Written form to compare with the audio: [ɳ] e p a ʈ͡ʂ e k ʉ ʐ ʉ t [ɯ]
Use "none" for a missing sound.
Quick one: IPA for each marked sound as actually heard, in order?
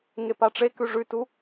ŋ, u

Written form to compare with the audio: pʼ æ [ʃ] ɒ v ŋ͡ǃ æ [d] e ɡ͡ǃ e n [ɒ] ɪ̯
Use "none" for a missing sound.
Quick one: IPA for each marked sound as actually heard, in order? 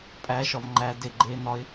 ʃ, d, ɒ

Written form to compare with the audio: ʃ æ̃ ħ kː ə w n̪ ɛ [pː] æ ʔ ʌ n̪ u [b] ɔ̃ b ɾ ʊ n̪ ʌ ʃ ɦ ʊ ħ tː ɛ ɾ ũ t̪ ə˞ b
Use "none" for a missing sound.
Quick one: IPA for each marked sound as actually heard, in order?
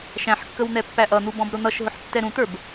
pː, b

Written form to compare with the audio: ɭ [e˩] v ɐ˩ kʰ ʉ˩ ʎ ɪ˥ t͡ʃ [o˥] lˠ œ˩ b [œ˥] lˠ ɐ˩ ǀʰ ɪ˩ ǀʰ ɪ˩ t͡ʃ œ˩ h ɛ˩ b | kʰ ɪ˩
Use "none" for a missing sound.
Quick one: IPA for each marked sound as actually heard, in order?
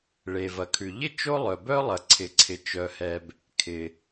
e˩, o˥, œ˥

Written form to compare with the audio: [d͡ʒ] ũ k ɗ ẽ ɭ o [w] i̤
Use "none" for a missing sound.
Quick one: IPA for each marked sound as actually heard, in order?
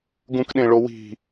ɡ, w

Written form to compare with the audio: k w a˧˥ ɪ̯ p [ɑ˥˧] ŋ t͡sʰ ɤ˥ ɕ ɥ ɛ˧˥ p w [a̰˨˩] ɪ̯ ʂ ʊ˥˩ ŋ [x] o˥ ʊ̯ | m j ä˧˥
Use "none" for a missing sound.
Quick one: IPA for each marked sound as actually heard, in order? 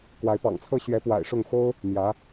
ɑ̰˨˩, a̰˨˩, x

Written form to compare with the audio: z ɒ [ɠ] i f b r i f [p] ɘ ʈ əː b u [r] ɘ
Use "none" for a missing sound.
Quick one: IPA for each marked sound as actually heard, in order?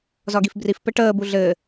ɡ, p, ɮ

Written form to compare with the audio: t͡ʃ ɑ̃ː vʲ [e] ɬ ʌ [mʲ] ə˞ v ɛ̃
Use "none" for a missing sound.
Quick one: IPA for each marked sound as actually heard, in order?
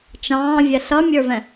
ɛ, mʲ

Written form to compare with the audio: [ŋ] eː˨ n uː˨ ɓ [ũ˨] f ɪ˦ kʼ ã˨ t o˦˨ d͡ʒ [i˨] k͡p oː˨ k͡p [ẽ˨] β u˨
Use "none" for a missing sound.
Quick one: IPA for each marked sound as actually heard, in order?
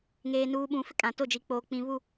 ŋ, ũ˨, i˨, ĩ˨

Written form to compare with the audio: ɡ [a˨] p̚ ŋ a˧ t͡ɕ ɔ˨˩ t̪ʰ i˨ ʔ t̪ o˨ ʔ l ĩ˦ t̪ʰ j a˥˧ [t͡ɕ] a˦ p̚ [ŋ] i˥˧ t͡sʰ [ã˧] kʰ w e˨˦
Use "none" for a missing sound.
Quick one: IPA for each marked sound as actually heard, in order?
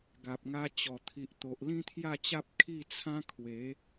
a˨, t͡ɕ, kʰ, ã˦

